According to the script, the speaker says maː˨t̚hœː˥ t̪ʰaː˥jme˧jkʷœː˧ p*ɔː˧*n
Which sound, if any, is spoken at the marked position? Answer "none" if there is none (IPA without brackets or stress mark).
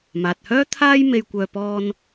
ɔː˧